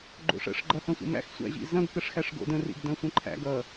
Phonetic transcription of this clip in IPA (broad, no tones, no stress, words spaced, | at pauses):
ɡ͡ǃo̰ʂə̰ʂ ɡ͡ǃɐhɐ̃sʷə̰mæ̰x sʷæ̰ʑḭzɐ̃ɡ kəʂxæʂɡo̰də̃ rḭɡdɐ̃sʷɐ̃ǃʰæ̰ɡ ʌ